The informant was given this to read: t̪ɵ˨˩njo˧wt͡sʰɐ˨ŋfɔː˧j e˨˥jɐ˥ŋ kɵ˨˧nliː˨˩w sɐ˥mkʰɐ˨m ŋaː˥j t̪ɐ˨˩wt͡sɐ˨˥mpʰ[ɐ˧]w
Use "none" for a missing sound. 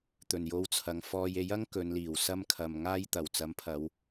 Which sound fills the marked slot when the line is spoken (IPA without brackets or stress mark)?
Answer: ɐ˨˧